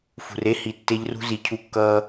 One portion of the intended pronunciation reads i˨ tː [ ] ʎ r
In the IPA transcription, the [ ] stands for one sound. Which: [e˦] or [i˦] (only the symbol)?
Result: e˦